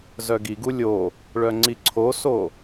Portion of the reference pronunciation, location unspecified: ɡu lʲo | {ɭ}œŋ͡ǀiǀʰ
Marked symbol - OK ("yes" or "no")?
yes